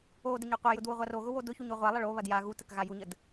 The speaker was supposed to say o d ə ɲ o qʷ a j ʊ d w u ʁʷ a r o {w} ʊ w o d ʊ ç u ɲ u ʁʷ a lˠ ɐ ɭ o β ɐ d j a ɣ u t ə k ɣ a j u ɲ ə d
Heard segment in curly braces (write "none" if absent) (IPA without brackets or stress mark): ɣ